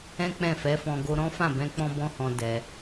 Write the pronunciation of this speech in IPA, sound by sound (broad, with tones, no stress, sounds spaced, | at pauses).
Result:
ɛ̃˦ k͡p ɛ̃˦˨ f ɛ˨˦ f ɔ̃˧ ɡ o˧ ɾ ɔ̃˦ f ã˦˨ b ɛ̃˧ k͡p ɔ̃˦ b ɔ̃˦ h ɔ̃˧ d ɛ˧